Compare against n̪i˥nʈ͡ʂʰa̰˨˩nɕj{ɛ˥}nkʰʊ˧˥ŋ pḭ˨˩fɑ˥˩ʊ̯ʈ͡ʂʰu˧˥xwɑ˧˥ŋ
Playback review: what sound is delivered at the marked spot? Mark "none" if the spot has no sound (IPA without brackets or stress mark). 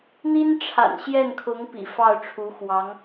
ɛ˥˩